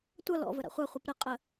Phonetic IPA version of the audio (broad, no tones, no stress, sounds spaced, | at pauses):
tʷ ʌ l ɔ̰ v ə ɾ a̰ χʷ a χʷ ə p ɾ ə qʼ ə